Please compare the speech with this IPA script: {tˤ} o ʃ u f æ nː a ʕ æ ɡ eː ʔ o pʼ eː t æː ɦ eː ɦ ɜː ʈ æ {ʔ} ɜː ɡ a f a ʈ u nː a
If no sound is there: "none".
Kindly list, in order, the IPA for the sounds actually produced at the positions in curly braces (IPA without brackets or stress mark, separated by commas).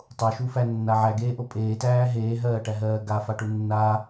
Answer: tˤ, ɦ